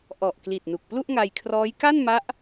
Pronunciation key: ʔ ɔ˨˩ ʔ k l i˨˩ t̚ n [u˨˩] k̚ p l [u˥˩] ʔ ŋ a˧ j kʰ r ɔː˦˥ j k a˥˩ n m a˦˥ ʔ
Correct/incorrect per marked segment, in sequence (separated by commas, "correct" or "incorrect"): correct, correct